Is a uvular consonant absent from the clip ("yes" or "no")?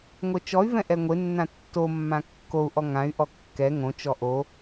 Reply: yes